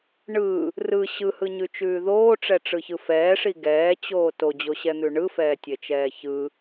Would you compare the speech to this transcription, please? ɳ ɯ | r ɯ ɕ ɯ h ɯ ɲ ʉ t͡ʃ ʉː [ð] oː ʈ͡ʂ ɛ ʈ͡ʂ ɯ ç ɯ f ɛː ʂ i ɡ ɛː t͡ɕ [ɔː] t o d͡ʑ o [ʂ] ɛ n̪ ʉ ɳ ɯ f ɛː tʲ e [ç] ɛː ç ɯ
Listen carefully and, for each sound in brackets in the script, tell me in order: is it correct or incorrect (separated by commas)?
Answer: correct, incorrect, incorrect, incorrect